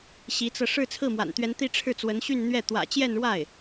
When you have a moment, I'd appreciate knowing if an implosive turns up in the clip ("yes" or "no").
no